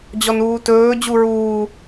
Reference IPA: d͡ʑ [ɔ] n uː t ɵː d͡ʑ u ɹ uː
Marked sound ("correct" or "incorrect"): correct